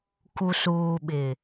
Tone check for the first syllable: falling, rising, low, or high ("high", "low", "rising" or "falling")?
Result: low